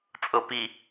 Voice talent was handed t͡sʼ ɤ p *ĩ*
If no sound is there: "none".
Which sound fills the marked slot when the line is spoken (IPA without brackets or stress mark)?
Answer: i